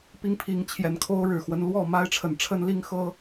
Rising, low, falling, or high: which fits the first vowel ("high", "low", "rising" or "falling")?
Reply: high